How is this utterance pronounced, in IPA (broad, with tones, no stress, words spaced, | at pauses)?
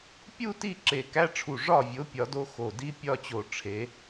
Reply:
pʲu˥˧ti˥˩ ǁe˧˩kæ˧˥˧ʈ͡ʂʰu˧˩ ʐɒ˥˩vʲo˨˥ pʲɒ˨˥do˦˥xo˧˩ di˦˥pʲɒ˥˧t͡ɕo˧˩ ʈ͡ʂʰe˨˥